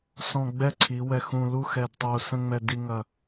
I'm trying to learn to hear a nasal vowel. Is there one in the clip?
yes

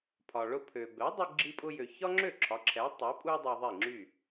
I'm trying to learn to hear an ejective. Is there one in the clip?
yes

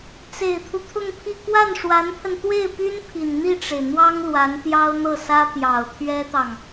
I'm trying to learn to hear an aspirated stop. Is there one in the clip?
yes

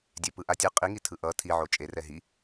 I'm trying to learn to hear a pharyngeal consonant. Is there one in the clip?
yes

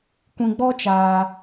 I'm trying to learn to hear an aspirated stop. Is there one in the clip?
no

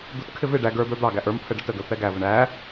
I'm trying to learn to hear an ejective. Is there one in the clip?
no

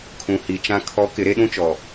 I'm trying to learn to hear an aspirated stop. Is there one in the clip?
yes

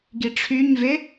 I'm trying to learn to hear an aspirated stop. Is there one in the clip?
yes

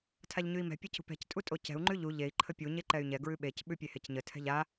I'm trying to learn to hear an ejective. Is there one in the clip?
yes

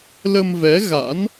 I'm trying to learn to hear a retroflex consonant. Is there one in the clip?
no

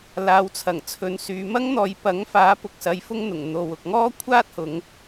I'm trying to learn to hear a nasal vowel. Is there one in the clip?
no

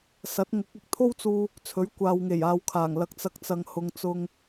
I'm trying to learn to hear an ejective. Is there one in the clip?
no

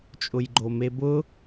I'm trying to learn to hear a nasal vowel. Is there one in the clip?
no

